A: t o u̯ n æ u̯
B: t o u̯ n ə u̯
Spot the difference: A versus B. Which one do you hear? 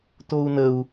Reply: B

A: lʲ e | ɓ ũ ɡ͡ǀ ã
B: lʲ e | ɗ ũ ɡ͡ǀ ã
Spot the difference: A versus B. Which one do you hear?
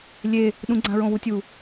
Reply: B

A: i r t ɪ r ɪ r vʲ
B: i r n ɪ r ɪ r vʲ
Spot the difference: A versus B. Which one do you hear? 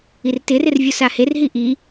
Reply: A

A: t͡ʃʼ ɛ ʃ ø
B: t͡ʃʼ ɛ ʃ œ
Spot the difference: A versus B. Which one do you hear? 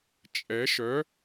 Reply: B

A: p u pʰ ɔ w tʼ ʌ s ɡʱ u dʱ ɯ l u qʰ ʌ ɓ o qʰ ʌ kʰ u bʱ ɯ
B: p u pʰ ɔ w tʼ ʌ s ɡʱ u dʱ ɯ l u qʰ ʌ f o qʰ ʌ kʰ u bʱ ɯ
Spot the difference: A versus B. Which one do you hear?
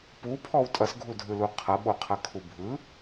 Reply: A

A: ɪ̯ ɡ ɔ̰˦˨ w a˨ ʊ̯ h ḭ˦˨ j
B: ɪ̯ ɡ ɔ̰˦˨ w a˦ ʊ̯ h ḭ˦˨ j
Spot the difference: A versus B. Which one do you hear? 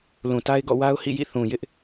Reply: B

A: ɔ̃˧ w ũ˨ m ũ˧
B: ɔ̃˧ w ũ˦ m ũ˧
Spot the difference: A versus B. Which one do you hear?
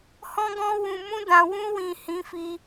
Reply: A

